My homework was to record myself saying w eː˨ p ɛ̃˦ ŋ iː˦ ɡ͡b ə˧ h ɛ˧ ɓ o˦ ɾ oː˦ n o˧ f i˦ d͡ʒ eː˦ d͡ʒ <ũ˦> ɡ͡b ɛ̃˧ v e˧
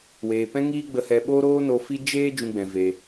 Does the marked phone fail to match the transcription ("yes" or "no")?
no